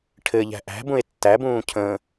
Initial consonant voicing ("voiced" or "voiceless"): voiceless